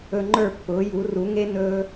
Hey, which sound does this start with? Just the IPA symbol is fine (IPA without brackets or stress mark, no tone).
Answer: ɵ